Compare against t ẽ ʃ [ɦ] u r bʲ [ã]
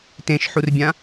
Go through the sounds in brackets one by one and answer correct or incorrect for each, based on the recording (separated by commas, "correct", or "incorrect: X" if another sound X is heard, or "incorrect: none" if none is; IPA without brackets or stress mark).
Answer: incorrect: ħ, correct